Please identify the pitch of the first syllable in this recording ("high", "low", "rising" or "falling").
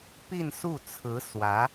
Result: falling